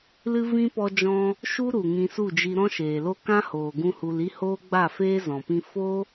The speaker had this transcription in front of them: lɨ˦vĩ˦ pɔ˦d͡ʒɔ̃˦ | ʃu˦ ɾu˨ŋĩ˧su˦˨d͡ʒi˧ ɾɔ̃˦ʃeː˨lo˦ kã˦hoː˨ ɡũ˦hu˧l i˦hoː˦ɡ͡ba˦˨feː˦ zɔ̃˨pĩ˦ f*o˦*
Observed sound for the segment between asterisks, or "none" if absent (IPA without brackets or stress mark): o˦